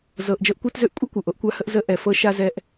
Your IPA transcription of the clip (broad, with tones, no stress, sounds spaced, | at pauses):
z ɤ˨ ʔ d͡ʒ ɤ˧ ʔ kʷ a˦ t z ø˦ ʔ kʷʼ ʌ˦ kʷ ɤ˨ ʔ o˧ ʔ kʷ a˧ h ə˧ ʔ z ə˧ ʔ ɛ˨ f ɤ˧ ʃ a˧ z ɛ˧ ʔ